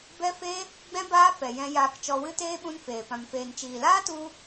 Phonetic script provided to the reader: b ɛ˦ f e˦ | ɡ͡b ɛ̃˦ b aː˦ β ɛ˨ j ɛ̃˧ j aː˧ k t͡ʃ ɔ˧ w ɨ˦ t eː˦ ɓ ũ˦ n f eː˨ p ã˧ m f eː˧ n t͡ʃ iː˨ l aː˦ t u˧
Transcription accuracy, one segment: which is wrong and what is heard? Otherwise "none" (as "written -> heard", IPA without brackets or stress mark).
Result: β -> f